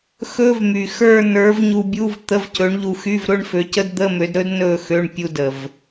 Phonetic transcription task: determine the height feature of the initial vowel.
mid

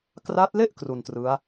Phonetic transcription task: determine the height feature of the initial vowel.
low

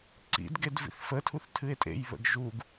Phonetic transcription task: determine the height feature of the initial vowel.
high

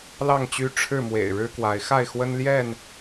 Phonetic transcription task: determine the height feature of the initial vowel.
low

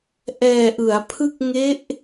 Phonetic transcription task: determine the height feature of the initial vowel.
mid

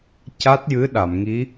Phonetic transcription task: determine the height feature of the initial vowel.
low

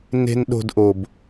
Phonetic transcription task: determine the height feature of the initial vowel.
mid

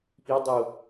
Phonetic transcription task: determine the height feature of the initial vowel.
high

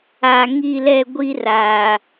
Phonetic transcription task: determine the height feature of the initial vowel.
low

